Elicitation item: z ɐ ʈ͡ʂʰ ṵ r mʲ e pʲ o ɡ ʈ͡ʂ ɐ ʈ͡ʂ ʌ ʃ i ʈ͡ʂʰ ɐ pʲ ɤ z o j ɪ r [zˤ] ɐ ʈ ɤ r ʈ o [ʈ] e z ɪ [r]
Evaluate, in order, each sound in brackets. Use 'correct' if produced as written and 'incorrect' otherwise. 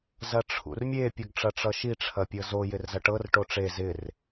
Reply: incorrect: z, incorrect: ʈ͡ʂ, correct

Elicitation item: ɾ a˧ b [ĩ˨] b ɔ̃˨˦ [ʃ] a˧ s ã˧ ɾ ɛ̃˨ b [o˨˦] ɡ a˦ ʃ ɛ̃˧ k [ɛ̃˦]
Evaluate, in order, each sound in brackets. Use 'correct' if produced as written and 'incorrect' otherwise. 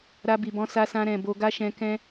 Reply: incorrect: i˨, incorrect: s, incorrect: o˧, correct

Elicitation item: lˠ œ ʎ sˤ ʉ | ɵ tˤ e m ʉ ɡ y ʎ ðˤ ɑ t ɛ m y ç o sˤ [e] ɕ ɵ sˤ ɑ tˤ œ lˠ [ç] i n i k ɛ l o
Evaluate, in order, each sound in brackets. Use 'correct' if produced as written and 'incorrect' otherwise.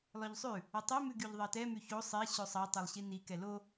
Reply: correct, incorrect: ɕ

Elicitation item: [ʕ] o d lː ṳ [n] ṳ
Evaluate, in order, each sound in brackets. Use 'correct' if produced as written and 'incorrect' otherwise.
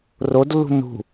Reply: incorrect: r, correct

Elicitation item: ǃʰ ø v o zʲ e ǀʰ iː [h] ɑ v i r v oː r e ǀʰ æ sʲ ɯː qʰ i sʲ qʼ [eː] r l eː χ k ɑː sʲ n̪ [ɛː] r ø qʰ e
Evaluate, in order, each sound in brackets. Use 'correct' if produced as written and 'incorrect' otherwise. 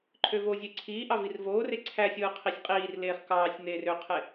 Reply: incorrect: ʔ, incorrect: iː, incorrect: eː

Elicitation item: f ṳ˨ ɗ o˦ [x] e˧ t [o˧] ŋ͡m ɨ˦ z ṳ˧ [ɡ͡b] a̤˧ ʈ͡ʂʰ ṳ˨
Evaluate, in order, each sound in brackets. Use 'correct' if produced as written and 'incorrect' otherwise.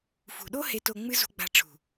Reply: incorrect: h, correct, correct

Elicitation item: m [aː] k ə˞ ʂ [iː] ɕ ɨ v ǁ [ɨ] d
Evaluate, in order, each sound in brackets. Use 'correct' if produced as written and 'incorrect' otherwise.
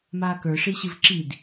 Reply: correct, incorrect: i, incorrect: i

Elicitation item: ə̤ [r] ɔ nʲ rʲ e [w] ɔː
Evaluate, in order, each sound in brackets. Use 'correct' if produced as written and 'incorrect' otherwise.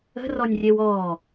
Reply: correct, correct

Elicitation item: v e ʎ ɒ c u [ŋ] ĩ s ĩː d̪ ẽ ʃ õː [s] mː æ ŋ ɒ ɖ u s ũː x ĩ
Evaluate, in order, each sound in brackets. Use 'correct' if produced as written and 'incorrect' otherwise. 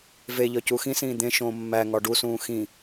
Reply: incorrect: x, incorrect: none

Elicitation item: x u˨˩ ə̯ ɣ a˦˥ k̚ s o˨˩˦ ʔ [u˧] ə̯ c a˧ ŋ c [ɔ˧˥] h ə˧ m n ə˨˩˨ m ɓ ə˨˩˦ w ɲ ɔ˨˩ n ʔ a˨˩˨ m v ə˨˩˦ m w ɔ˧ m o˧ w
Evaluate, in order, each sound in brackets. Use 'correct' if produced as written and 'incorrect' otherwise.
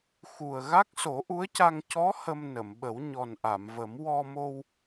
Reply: incorrect: u˧˥, correct

